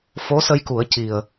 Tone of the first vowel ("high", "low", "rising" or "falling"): rising